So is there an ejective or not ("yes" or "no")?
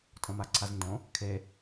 yes